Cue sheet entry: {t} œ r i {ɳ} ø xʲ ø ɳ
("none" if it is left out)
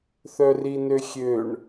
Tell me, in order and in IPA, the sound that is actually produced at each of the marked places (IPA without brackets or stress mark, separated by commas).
θ, n